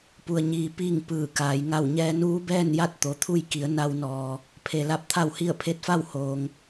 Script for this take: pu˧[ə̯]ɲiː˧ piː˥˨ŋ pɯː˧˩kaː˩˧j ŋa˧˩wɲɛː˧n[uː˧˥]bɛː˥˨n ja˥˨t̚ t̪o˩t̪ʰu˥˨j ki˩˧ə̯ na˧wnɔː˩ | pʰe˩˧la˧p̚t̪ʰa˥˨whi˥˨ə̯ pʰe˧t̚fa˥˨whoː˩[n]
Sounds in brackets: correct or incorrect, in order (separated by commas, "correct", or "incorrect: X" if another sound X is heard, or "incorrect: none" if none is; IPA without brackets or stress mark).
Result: correct, correct, incorrect: ŋ